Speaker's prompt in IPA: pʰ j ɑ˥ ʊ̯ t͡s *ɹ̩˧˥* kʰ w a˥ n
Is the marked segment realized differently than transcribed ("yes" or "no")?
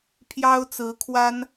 no